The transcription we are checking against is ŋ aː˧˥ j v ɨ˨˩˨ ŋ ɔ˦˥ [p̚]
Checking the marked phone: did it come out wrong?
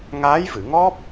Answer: no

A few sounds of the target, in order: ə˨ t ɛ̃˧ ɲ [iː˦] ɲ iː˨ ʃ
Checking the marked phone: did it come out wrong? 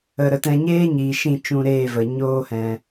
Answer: yes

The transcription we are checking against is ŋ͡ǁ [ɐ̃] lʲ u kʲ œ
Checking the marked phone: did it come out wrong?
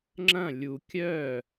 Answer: no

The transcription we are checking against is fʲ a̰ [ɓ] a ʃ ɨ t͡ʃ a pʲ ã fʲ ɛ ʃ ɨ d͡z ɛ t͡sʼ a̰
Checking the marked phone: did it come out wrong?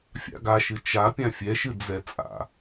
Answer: yes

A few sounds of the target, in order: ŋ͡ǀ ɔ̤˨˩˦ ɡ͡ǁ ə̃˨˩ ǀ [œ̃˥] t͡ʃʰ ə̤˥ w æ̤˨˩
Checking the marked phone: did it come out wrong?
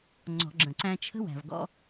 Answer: yes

